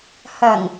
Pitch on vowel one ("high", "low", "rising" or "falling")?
low